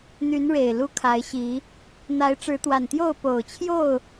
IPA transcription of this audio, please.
n̪ y˨˦ n ɻ e˨˩ ɪ̯ l u˦ kʰ a˨˦ ɪ̯ ɕ i˨˦ | n̪ a˨˦ ɪ̯ ʈ͡ʂ ɻ̩˨˦ t̪ w a˨˩ n t̪ j o˥˨ ʊ̯ p o˨˩ ʊ̯ t͡ɕʰ j o˥˨ ʊ̯

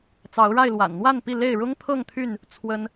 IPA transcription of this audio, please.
t͡s ɑ˨˦ ʊ̯ ɻ a˥˨ ɪ̯ l w a̰˨˩ n n̪ w a˥˨ n p i˥˨ l e˥˨ ɪ̯ ɻ ʊ˦ ŋ t̪ʰ ɤ˥˨ ŋ t̪ʰ y˥˨ n | t͡sʰ w ə˦ n

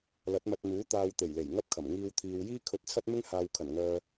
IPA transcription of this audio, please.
l ɐ˨˥ t̚ m ɐ˧ t̚ n̪ uː˨˥ t̪ aː˧ w t̪ e˨˩ j l e˨˩ j ŋ ɐ˥ p̚ kʰ ɐ˨˩ m ŋ iː˧ w t̪ʰ iː˨ w j iː˥ kʰ ɵ˧ t̚ t͡sʰ ɐ˥ t̚ m ɪ˥ ŋ h aː˧ w kʰ ɐ˨˩ n ŋ œː˧

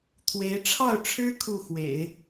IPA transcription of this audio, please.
t̪ʰ w e˧˥ ɪ̯ ʈ͡ʂʰ ɑ˥˩ ʊ̯ ʈ͡ʂʰ ɻ̩˥ kʰ u˥˩ x w ḛ˨˩˦ ɪ̯

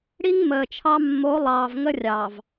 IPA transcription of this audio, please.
ɽ i˦ ŋ m əː˨ t͡ʃʰ ɑ˦ mː o˨˦ lˠ ɑː˨ v ŋ ə˦ rʲ ɑ˨ v

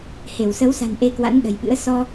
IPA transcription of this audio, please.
h e˧˩ w s ə˨˦ w s a̤˨˩ n ʔ e˧ k w a̰˧˥ n ɗ ə̤˨˩ j ɓ ɨ̰˧˥ ə̯ s ɔ˧

